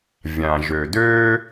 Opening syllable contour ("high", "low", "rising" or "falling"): low